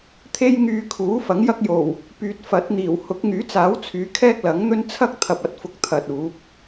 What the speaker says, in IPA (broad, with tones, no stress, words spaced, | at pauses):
t̪ʰe˧jŋyː˨ kʰuː˨˥fɐ˨˥ŋjɐ˥k̚ jo˨˩w | pyː˨t̚fɐ˨˥t̚n̪iː˨˩w hʊ˨˥k̚ŋyː˨˥t͡saː˨˥wt͡sʰyː˨˧ kʰɛː˥k̚lɐ˨˥ŋn̪ɵ˥n t͡sʰɐ˥k̚t̪ʰɐ˨p̚ɐ˨t̚fʊ˨k̚ t̪ʰɐ˨t̚uː˨˥p̚